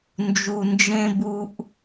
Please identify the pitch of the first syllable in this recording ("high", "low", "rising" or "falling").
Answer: low